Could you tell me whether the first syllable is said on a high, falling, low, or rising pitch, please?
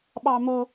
high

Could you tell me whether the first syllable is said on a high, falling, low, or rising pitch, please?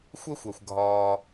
high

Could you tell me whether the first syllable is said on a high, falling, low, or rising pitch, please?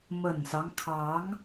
low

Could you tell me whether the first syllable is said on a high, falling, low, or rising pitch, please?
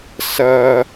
high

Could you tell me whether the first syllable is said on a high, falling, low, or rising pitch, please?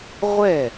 falling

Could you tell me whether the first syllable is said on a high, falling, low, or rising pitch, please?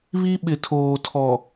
high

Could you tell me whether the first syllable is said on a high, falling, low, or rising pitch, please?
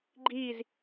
falling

